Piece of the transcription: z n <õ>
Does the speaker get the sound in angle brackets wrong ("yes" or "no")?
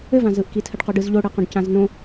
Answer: no